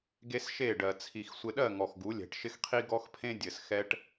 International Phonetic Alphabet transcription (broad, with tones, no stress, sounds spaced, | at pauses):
ɡ e˦ s ʃ e˦˨ ɖ ɜ˨ t͡sʰ i˨ x sʷ ɪ˨ ɗ ɜ˦˨ ŋ ɔ˨ x ɡ u˨˦ lʲ ɛ̤˨ ʈ ʃ ɪ˦ x qʰ i˦ ɡ ɔ˦ x pʰ ẽ˦ dʲ ɘ˨ s x ɛ˦ ʈ